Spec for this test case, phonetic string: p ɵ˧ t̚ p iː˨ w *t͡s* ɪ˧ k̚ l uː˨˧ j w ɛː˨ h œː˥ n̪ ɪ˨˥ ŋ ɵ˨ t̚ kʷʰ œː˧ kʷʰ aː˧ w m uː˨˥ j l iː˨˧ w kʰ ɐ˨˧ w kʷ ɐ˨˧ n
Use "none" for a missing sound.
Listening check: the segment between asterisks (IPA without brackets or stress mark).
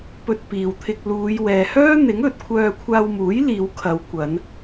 t̪ʰ